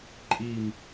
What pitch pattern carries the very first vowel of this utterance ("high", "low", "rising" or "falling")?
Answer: low